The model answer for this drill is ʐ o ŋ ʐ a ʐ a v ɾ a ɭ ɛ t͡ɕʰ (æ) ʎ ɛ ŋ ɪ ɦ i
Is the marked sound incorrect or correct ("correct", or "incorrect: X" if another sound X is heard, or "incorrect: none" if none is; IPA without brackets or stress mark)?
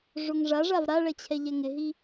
incorrect: ɛ